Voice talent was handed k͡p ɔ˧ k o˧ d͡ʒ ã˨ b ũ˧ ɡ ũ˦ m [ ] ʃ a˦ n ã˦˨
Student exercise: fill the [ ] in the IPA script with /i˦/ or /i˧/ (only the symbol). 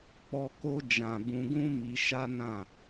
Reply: i˧